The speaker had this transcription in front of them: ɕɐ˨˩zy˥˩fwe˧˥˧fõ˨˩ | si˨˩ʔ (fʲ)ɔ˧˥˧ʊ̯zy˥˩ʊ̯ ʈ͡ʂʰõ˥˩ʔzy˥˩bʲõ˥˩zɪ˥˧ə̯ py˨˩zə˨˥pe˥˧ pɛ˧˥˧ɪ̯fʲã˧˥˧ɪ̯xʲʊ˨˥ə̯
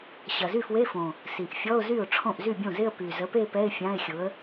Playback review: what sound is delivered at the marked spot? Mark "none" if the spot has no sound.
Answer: fʲ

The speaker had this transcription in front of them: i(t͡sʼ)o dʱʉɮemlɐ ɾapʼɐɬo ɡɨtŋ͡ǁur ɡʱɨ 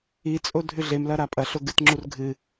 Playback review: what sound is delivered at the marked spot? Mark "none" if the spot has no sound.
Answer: t͡sʼ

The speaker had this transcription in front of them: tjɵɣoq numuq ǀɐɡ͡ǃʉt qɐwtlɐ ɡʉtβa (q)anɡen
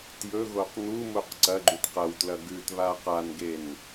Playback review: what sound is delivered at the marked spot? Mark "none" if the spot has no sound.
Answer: q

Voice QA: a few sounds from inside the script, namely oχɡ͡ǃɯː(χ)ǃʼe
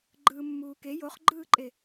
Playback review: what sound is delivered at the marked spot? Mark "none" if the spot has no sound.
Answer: none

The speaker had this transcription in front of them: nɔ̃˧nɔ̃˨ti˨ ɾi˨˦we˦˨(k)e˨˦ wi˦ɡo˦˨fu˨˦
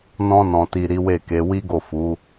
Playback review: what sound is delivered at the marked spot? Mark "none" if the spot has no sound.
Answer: k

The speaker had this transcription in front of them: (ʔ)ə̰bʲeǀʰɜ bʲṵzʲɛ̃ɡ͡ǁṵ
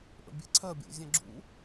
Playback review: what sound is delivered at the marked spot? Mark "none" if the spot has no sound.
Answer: ʔ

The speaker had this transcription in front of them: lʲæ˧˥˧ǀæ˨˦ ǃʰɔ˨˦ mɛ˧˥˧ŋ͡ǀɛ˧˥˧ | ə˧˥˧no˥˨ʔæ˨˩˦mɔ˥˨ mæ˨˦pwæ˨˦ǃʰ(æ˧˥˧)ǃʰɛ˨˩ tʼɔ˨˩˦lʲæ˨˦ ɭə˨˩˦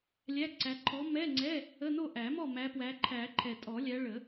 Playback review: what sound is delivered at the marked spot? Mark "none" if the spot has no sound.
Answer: æ˨˩˦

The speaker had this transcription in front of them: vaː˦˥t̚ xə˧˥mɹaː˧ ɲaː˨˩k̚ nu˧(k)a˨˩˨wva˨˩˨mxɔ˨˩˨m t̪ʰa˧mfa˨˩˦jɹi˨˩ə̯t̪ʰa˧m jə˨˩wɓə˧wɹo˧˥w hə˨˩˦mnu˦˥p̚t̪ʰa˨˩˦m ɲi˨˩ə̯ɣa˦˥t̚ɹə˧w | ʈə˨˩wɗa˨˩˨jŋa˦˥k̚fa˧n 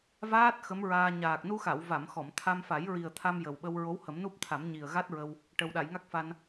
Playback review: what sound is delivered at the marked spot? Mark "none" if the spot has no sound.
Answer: x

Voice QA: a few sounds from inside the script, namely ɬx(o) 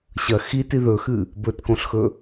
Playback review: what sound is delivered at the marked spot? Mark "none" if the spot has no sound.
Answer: ɵ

